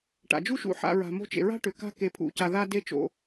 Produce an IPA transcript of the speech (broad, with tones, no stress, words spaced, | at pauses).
ʈa̰˩d͡ʒu˥ʃṵ˨ħa̰˨ ɹa̤˩mo̤˦t͡ʃḛ˩ ɹa̤˥ʈʏ˩ ka̤˥ke˨pʰṵ˨ca˨ ða˥de˥ t͡ʃo̰˨